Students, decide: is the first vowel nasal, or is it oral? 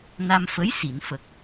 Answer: oral